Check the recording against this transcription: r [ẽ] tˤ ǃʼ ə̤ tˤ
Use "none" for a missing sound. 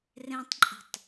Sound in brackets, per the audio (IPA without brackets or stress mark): ẽ